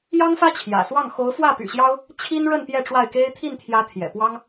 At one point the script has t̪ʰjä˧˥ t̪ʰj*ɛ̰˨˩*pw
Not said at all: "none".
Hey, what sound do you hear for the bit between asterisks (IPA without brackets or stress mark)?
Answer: ɛ̰˨˩